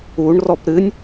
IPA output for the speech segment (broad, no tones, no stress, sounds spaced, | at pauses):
u ɳ r ɔ p ɾ ɨ nʲ